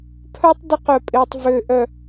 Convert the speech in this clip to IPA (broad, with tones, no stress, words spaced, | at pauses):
pʰœ˦tˤ dɪ˦qœ˨pʼɪː˨tˤ vø˨ ʔœ˨